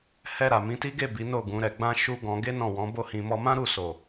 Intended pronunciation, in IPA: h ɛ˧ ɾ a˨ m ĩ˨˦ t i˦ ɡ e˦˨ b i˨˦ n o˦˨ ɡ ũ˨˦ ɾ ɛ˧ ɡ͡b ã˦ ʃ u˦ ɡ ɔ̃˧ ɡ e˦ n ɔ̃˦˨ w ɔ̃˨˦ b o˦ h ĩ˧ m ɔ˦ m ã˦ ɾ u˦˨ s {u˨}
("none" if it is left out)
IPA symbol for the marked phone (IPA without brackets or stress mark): o˨